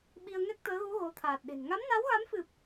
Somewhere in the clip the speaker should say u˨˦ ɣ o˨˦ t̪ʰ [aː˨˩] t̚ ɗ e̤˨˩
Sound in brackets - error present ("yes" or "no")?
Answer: no